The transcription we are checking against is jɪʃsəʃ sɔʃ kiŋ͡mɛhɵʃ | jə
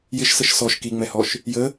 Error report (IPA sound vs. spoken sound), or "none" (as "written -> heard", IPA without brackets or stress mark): ɵ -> ɔ